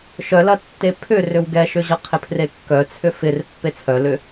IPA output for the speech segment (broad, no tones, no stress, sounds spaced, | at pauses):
ʃ œ l ɐ tː e pʰ ʏ r ʏ w ɡ ɛ ʃ ʏ ʑ ɐ qʰ ɪ pʰ r e kː œ t͡sʰ ʏ f ɪ r pː e t͡sʰ œ l ʏ